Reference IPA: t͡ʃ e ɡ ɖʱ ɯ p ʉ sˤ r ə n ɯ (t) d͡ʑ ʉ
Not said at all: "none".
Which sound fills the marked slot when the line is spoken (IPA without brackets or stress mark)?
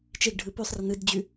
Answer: d